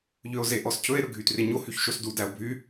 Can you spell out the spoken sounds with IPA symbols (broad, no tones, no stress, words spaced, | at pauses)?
ʎøo̯zeʔɔscʰɵe̯ ɾɵɡʱytreɲo hyçʃosdu dæo̯bʱy